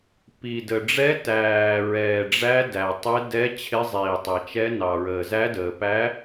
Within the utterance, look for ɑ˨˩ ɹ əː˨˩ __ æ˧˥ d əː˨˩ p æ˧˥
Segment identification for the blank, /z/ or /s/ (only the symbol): z